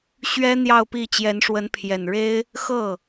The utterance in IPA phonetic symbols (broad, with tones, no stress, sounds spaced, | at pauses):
ɕ ɥ ɛ˥ n̪ j ɑ˥˧ ʊ̯ p i˥˩ t͡ɕ j ɛ˧˥ n ʂ w ə˧˥ n pʰ j ɛ˨˩ n ɻ e˥ ɪ̯ | x ɤ˥˩